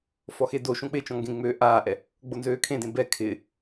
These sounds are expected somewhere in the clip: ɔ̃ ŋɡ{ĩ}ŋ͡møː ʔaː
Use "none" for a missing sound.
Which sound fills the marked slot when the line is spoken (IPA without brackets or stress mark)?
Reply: ẽ